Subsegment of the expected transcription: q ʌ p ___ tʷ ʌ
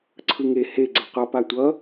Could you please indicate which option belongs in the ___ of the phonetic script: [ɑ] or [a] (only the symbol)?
a